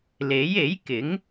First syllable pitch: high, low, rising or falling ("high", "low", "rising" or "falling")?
rising